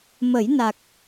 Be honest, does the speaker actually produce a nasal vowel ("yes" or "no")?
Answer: no